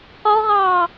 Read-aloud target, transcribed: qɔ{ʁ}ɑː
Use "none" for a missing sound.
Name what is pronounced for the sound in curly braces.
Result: ʁ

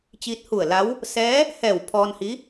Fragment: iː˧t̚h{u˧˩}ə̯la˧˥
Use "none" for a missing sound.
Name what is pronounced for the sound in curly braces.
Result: u˧˩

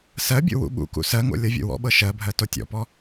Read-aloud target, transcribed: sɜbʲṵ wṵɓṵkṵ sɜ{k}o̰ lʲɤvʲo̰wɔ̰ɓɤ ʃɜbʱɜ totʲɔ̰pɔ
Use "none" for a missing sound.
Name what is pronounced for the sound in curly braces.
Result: ŋ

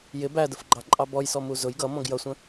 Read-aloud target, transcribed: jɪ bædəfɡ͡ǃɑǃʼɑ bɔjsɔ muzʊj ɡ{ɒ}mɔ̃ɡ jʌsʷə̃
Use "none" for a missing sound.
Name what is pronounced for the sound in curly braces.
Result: ʌ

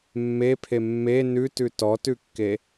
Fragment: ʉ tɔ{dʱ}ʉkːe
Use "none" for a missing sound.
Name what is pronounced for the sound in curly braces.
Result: t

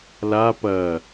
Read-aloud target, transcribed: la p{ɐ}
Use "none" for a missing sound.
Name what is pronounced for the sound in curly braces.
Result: ɐ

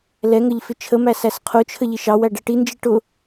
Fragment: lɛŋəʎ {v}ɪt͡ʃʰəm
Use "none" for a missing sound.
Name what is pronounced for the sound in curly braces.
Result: f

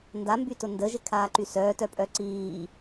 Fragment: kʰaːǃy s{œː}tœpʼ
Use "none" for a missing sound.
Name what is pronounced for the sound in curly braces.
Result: œː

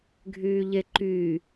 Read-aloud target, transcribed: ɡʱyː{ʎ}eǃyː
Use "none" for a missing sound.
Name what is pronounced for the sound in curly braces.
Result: ʎ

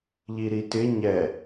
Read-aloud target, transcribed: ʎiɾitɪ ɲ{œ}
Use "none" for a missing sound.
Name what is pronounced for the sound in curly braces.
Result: ɛ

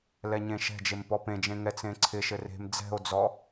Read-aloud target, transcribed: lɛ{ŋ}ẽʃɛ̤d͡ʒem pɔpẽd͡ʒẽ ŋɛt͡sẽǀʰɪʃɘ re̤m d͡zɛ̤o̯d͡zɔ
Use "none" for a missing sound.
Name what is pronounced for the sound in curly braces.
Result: ɲ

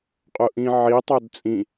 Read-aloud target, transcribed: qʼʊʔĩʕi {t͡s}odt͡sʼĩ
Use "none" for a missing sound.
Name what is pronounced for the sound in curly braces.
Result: tˤ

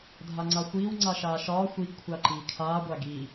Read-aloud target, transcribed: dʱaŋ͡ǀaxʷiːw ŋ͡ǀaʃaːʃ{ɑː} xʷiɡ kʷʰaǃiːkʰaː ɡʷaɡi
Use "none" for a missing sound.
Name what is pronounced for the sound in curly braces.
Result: ɒː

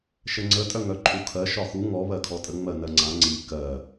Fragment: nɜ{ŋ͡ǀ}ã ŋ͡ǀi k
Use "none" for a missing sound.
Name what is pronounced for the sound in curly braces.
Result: ŋ͡ǀ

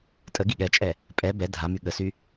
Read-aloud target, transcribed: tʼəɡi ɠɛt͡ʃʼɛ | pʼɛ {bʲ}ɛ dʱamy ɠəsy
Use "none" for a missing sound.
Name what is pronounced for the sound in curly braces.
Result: b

